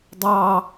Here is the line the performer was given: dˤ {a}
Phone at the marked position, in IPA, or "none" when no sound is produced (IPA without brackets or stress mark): ɑ